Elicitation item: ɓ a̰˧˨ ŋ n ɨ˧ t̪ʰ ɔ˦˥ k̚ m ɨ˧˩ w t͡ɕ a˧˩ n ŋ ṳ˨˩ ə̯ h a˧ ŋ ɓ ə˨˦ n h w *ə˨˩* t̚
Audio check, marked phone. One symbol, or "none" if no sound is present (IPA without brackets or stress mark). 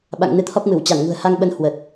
ə˨˩